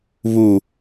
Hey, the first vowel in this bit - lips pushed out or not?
yes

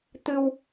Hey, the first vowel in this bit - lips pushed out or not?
no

